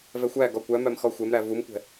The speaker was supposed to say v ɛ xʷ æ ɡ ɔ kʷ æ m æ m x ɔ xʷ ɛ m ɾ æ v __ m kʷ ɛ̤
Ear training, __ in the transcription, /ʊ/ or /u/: u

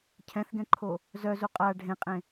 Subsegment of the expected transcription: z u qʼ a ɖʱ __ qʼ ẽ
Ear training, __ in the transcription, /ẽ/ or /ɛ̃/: ẽ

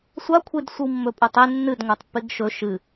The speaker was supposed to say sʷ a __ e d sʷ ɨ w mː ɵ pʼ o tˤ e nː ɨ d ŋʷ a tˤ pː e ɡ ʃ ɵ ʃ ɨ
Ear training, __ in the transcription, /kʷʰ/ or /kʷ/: kʷʰ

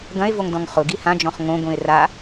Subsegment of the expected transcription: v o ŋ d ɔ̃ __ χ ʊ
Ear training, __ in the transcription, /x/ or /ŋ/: ŋ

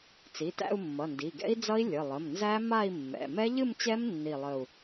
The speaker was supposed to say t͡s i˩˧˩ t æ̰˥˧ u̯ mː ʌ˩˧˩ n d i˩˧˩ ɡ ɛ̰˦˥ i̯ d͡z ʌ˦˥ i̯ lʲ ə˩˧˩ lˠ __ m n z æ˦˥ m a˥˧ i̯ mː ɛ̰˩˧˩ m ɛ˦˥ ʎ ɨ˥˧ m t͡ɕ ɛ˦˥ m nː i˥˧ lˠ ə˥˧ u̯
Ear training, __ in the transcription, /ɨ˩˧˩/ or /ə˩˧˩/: ə˩˧˩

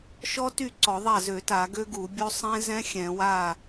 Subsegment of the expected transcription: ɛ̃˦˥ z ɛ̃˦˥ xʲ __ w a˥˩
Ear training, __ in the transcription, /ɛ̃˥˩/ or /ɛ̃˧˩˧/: ɛ̃˧˩˧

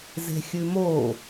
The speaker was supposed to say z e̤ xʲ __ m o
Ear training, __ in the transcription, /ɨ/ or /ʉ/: ʉ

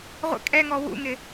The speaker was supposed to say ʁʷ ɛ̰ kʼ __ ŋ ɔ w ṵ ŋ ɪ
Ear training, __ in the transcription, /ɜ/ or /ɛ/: ɛ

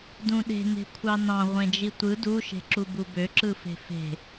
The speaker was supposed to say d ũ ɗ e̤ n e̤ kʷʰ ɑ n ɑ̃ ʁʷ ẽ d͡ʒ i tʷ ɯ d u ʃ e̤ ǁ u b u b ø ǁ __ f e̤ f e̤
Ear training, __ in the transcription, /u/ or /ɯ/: ɯ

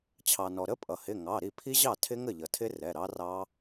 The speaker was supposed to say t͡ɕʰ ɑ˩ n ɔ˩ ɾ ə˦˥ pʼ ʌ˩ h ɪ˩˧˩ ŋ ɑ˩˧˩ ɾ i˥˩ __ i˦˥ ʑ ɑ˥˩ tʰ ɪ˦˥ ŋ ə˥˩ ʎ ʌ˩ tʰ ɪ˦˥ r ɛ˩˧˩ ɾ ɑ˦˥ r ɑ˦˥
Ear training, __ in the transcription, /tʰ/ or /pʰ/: pʰ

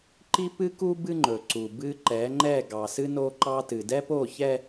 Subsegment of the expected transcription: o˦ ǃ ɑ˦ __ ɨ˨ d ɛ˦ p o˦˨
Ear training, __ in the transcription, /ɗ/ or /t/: t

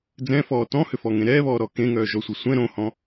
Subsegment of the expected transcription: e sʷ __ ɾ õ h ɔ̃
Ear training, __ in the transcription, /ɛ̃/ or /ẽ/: ɛ̃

